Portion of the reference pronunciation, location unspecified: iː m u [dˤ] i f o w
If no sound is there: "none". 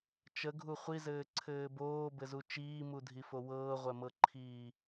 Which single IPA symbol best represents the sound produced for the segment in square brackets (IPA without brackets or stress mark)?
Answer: dʱ